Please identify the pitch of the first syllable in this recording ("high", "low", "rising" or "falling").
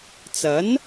rising